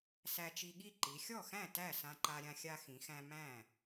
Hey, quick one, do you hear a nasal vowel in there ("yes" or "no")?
yes